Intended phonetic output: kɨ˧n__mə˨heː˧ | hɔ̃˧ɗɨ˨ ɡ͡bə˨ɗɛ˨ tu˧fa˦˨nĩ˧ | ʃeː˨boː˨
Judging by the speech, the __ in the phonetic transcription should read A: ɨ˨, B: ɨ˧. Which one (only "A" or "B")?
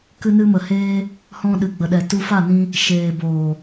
B